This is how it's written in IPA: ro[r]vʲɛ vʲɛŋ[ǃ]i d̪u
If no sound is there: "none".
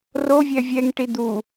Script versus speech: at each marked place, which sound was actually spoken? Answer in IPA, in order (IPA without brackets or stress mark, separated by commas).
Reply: none, ʈ